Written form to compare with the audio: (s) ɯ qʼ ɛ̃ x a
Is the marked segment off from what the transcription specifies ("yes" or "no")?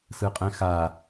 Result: no